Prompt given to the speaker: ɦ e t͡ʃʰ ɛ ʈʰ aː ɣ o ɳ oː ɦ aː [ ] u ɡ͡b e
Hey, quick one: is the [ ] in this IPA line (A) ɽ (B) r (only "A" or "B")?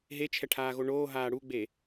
A